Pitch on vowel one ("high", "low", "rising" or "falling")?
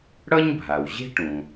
high